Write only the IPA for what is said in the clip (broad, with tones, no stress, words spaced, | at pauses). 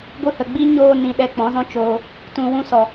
ɡʷɨ˧hə˨ɡ͡bi˦ ɲoː˧nĩ˨ ɗɛ˧k͡pɔ̃˨˦zɔ̃˦t͡ʃoː˧ | tũ˨wũ˧ sɔ˨